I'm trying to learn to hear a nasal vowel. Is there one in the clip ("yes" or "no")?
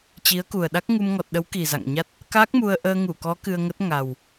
no